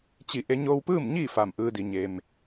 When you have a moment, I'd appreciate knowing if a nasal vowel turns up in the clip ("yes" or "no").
no